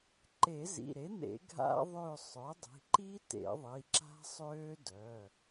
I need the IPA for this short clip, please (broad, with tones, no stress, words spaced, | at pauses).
ǃe˨˩˦zḭ˩˧˩ɾe˩˥n̪ḛ˨˩˦ ɡʱa̰˦˥ðˤø˦˨ sˤœ˩˥dˤi̤˩˧˩ǃi˦˥tḛ˨˩˦ ðˤi˩˧˩ǁa̤˦˥sˤøː˦˥ dœ˩˧˩